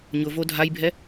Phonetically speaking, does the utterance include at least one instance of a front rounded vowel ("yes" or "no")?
no